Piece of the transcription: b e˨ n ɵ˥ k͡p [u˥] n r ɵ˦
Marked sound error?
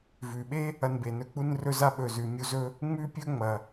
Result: no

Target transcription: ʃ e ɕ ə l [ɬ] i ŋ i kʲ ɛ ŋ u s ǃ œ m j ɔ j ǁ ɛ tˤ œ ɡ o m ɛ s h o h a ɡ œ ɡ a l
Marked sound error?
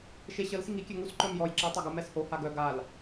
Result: yes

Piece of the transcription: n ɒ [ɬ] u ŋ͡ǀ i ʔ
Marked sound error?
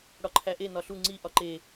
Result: no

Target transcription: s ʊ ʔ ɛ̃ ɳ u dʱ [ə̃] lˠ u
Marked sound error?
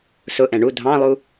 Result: yes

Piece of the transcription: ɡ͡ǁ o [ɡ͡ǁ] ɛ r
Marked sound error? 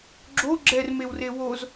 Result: no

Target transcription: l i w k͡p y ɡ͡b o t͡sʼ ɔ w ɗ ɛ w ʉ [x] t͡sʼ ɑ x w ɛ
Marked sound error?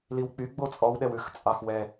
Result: no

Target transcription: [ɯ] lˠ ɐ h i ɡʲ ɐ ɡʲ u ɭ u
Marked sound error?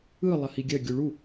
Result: no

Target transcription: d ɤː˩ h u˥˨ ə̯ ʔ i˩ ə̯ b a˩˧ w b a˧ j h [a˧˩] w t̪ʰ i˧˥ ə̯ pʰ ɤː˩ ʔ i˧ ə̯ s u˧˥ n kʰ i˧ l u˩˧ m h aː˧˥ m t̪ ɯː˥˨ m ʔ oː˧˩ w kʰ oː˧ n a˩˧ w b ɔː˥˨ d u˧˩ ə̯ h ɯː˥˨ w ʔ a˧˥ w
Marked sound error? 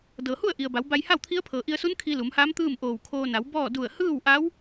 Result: yes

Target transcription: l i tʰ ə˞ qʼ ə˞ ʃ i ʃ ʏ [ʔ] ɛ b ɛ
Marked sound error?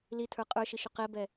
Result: yes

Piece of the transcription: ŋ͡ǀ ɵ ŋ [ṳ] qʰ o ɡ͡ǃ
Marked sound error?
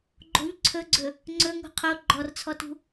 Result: no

